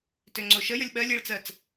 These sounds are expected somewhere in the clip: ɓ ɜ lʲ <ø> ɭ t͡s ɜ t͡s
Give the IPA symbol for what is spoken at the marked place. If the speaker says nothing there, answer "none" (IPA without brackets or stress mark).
e